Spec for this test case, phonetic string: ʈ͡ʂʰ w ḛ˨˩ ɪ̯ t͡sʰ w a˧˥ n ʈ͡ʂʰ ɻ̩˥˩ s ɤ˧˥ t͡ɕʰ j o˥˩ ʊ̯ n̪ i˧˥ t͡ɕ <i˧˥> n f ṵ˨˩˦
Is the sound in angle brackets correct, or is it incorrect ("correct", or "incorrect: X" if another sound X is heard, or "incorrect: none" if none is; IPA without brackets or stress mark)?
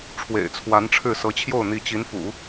correct